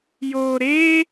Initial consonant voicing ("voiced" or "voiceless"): voiced